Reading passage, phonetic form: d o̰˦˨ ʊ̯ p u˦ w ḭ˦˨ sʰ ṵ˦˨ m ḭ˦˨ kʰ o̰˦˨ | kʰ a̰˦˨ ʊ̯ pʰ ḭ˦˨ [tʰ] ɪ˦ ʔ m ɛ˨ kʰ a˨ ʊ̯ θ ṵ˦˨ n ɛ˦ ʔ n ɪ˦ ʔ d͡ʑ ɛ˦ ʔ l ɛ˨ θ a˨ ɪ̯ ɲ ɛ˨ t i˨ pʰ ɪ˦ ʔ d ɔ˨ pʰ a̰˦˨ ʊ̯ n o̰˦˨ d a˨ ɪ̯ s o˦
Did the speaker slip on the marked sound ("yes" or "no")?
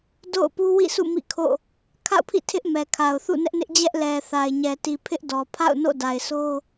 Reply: no